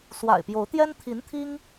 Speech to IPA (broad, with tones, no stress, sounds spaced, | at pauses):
s w a̰˨˩ ɪ̯ p j o˧˥ ʊ̯ t̪ j ɛ˥ n t̪ʰ i˧˥ n t̪ʰ i˥ ŋ